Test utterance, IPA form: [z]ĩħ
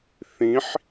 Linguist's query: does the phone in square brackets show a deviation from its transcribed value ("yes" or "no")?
yes